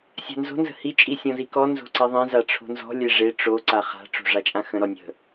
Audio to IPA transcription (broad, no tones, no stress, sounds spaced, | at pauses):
sʲ a̤ n z o̤ n z ə̤ h i t͡ʃʼ i sʲ ɔ̃ z i k ɔ n z o̤ ǀ i ðˤ ẽ z a ʈ͡ʂʰ o̤ n z ɔ̤ lʲ e ʐ e ʈ͡ʂ o ǀ a χ a̤ ʈ͡ʂ o̤ ʐ a t͡ʃʼ ã x ə̃ ɾ ɔ nʲ ə̤